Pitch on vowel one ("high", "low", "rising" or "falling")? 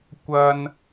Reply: high